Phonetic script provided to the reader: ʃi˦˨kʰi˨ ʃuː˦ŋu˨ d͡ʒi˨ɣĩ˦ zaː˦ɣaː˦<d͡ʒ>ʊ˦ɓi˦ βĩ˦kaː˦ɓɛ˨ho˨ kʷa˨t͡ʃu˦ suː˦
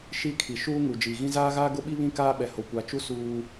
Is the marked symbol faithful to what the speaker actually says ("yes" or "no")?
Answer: no